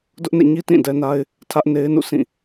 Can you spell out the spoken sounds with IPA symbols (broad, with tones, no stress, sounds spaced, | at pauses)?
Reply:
d ʊ˦ ʔ n ḛ˦˨ ɲ i˦ t ĩ˦˨ d ɛ˦ n a˦ ɪ̯ | tʰ ä˦ ʔ n e˦ ɪ̯ n ṵ˦˨ sʰ ĩ˦˨